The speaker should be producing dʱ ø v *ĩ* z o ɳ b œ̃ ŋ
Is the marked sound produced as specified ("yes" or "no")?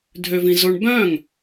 yes